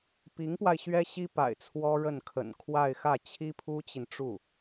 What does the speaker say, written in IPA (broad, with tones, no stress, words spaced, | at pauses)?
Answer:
pi˧˥ŋpwa˧ɪ̯ ɕɥɛ˥ɕi˥pa̰˨˩ɪ̯ t͡sʰwɔ˥ɻə˥˩n kʰə̰˨˩nkʰwa˥˧ɪ̯xä˥˩ t͡ɕʰi˥pʰu˥t͡ɕi˨nʈ͡ʂu˥˩